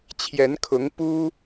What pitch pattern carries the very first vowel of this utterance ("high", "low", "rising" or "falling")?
rising